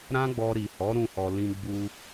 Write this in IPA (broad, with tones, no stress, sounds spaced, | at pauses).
ɾ ã˦ ɡ͡b ɔ˧ ɾ i˨ h ɔ˨˦ ɾ ũ˦˨ h ɔ˨ l ĩ˧ ɡ͡b u˧